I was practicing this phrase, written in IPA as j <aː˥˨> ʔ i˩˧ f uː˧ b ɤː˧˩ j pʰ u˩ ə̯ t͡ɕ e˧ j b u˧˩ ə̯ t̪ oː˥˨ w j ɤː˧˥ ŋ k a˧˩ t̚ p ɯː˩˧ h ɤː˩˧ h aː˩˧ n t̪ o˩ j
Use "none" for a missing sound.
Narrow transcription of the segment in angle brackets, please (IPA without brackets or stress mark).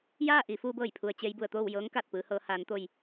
aː˥˨